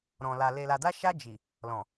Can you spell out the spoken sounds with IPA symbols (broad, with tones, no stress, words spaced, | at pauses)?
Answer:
ɾɔ̃˨la˨ le˨la˨da˧ʃa˧ d͡ʒi˨ | lɔ̃˨